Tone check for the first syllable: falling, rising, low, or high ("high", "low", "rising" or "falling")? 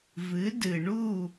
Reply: rising